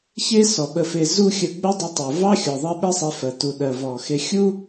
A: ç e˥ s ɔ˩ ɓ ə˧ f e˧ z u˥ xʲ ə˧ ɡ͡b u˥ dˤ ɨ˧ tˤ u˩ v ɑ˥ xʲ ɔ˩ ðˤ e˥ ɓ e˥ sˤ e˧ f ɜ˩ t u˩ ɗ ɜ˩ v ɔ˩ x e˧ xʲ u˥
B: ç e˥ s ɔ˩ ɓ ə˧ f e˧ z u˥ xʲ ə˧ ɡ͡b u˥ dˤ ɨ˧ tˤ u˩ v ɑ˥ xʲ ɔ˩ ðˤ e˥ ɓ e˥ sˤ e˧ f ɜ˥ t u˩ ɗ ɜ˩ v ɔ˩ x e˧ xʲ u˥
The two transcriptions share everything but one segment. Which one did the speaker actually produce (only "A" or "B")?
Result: A